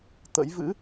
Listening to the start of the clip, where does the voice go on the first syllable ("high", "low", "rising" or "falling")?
rising